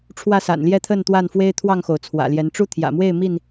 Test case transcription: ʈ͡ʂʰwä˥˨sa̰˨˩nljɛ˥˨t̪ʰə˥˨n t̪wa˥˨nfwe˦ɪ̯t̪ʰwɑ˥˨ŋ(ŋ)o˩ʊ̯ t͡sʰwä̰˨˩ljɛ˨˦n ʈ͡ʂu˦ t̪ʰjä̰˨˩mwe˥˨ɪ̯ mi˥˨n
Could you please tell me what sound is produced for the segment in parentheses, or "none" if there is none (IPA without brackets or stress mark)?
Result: x